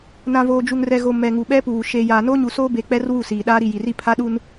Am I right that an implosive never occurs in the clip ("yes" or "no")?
no